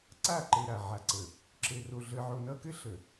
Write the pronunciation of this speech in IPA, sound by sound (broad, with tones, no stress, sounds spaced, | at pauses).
ǀ a˦˨ ǃ ɘ˨ ɾ a˨ ʕ a˨ ǀ ə˨ | ǁ ɘ˨ r o˨ ɮ ə˨ ʕ o˨ n ʌ˦ k ɘ˦ ɬ ə˨